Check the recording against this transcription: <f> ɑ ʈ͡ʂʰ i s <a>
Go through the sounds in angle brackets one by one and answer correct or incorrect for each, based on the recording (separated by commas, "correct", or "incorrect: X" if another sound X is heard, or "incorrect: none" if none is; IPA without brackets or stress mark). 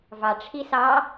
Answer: incorrect: v, incorrect: ɑ